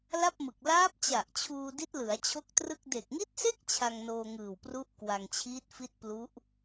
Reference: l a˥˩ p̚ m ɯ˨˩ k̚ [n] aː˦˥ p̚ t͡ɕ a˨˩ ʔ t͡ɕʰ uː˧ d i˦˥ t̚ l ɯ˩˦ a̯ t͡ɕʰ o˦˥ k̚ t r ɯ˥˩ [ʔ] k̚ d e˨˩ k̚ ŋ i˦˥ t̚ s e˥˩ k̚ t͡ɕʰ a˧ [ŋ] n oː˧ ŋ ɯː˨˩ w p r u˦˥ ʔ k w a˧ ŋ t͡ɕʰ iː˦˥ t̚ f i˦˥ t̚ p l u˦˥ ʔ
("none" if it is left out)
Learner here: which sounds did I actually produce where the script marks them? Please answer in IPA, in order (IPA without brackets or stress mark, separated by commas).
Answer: l, none, ŋ